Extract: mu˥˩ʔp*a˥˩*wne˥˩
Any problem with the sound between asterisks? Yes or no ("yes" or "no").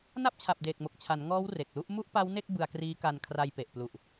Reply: yes